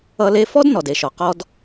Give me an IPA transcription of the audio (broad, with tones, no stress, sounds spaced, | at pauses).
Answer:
ʌ˧ l e˧ f ɔ˥ d n ɔ˩ d e˩ ʃ ɔ˩ q ɔ˧ d